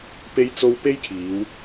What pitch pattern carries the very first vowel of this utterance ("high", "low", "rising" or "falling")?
high